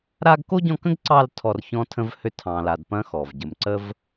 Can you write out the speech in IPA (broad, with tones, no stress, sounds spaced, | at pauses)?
ɾ a˥ ɡ k o˥ ɟ ɔ̃˦ k ə̃˥ ɡ ǀ ɑ˦ l tʰ ɔ˦ r ç ɔ̃ː˥ tʰ ə̃˥ v h ø˥ tʰ ɑ̃ː˨ l aː˨ d p ɐ̃˥ x ɔ˩ v ɟ ə˨ m ǀ ə˥ v